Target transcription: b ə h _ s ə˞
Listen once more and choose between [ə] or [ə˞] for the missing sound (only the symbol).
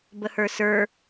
ə˞